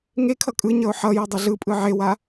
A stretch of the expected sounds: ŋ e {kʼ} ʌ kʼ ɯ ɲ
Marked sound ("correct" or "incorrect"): incorrect